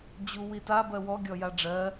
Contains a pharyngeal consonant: no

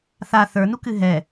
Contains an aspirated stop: no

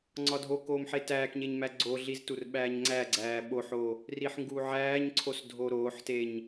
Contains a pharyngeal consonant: yes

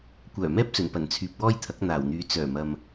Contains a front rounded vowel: yes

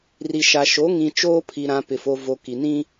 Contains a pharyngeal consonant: no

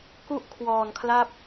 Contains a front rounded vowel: no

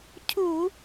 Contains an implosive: no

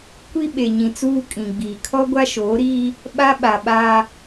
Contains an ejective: yes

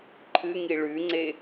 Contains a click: yes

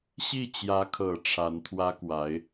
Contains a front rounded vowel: no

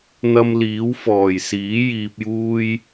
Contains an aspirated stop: no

